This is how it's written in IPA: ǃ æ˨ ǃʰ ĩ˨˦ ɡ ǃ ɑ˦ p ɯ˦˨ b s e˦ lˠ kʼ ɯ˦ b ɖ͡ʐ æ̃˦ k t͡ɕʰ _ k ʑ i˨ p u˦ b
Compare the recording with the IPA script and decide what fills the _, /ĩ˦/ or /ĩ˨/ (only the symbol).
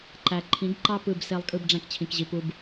ĩ˨